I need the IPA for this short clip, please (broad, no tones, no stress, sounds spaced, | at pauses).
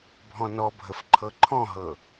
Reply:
bʱ ɔ̃ n ɔ bʱ ə f ǃʰ ɤ ǃʰ ɔ̃ ɦ ɤ